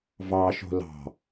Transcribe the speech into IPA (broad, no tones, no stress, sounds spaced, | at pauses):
v ɑ ʃ o̤ l ɑ̤